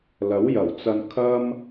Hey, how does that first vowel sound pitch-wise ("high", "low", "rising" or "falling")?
rising